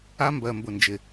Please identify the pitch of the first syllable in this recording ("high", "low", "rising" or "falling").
high